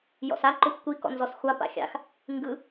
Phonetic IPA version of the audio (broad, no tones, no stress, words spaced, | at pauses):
jɔ̰sa ǃʊxʷkʷi kɔ̰nzɔsxʷa pa̰xʲa̰x | ŋɡɯ